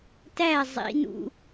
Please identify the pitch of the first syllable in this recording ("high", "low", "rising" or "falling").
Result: falling